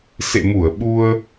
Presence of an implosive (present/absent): present